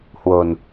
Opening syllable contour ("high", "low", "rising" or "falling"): low